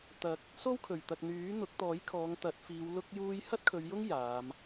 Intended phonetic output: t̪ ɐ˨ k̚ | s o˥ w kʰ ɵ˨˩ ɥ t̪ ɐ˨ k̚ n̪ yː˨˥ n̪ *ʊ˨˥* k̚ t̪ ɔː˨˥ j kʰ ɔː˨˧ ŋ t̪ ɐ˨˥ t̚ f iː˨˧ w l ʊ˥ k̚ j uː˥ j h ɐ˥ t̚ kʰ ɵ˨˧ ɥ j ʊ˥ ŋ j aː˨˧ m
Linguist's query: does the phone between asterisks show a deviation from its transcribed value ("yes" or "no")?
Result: no